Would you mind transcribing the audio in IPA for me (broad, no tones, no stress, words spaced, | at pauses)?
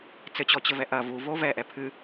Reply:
t͡sɘt͡ɕɔt͡ɕɘvɛ ʔɐ vuvo vɛʔɛ pʰɨ